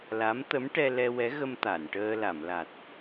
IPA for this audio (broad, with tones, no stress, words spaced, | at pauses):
la˧˥m t̪ə˧˥mʈɛ˧ lɛ˧wɛ˧˥ɣə˧m t̪a˨˩˨nʈəː˧ la˨˩˨mla˨˩t̚